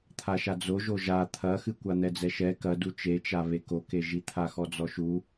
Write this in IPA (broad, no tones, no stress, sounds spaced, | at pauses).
t̪ʰ a ʃ a d͡z o ʒ o ʒ a t̪ʰ ɐ x ɨ kʷ a n̪ ɛ d͡z ɛ ʃ ɛ k ɐ d u t͡ʃ e t͡ʃ a β e k o k e ʒ i t̪ʰ a x ɔ d͡z ɔ ʃ u